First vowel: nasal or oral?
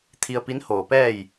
oral